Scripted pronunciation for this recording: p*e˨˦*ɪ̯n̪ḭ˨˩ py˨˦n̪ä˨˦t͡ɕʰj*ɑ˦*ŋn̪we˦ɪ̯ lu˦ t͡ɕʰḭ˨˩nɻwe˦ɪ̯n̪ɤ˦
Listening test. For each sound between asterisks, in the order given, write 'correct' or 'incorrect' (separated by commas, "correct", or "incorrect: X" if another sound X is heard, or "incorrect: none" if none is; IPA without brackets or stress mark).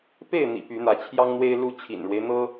incorrect: e˥˨, correct